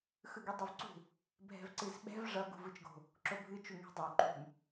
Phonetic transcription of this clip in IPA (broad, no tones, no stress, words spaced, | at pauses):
xɯɡydˤyvǀṳ | bʱɛ̤vǀɨzɓɛ̤v ʐʌ ɡṳvɯt͡ʃɡo̤ | ǁobʱɨ t͡ʃuŋɛ̤dˤo ǃṳm